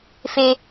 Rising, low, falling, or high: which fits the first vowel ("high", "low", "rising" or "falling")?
high